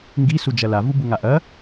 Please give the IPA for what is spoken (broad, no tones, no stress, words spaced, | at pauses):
ŋɡi sud͡ʒɐla vubuŋaʔɐ